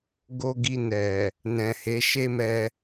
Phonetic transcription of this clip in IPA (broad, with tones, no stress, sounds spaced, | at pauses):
ɡ o˧ ɡ i˧ n ɛ˨ | n ɛ̃˨ h e˨˦ ʃ e˦ m ɛ˧